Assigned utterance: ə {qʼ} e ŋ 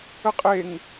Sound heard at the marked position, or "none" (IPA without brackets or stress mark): qʼ